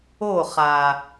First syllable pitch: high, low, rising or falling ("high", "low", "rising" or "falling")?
falling